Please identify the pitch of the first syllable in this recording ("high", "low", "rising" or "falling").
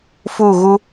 falling